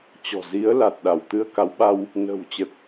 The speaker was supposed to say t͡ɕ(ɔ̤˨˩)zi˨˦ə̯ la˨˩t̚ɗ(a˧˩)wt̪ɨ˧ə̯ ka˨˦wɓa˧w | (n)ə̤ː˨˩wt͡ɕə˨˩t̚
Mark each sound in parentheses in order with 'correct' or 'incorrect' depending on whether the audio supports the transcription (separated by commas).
correct, correct, correct